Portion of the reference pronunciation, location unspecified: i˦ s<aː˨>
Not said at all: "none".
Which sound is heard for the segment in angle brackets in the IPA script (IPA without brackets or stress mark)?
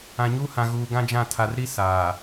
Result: aː˨